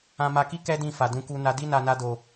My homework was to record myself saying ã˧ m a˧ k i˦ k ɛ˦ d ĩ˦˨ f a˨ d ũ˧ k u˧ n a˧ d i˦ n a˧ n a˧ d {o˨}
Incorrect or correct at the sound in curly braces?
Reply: correct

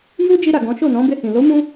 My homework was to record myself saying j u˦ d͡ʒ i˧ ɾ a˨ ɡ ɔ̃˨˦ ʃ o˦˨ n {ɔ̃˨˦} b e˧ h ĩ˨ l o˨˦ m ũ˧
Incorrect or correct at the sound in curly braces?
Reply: correct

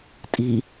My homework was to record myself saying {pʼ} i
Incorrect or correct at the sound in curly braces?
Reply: incorrect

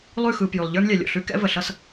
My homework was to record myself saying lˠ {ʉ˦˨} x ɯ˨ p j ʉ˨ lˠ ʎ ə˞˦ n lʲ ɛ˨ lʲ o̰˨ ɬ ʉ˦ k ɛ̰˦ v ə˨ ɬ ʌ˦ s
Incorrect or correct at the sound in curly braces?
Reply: correct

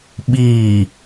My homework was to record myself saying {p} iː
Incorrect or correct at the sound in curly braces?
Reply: incorrect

